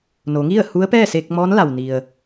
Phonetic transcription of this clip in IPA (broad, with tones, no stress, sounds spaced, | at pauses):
n o˩˧ ŋ i˥˨ ə̯ h u˧˥ ə̯ p ɛː˥˨ s eː˧ k̚ m ɔː˧˥ n l a˩ w n i˩ ə̯